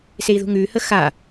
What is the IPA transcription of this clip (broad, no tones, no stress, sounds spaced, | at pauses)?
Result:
s e i̯ ð ṳ ŋ ʉ h ə x a